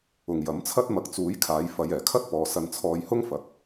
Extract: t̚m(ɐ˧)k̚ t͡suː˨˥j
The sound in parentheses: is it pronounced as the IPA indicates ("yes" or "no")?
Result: yes